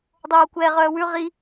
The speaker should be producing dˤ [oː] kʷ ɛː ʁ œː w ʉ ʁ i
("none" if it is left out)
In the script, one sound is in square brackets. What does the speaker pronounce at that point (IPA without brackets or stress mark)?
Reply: oː